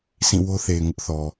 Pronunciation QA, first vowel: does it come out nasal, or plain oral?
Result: nasal